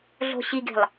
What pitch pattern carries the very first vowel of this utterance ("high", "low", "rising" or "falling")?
low